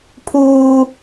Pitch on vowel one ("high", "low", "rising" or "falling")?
high